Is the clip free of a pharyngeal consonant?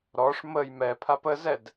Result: yes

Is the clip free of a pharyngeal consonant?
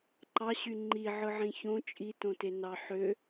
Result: no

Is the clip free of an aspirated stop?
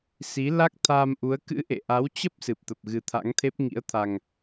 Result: no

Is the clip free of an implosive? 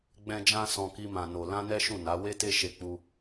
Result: yes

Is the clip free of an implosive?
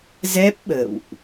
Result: no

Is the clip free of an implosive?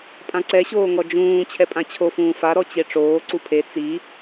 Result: yes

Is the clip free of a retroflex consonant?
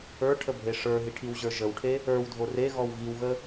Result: no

